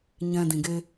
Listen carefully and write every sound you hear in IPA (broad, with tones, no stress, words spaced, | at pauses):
ɲɛ̃˦dĩ˧ɡe˦